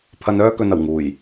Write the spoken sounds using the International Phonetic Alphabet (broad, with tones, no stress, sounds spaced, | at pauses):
pʰ ɐ˨ n œː˧ k ɵ˨ n ɐ˨˩ w ŋ uː˨˩ j